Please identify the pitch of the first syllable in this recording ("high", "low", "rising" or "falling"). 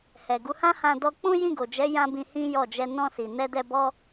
low